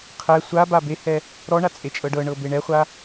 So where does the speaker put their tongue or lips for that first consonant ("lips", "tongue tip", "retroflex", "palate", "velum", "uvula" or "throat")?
uvula